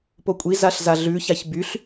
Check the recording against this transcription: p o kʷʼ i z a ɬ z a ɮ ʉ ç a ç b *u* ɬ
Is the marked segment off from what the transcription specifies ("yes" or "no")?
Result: yes